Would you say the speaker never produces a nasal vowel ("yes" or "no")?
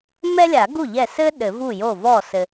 yes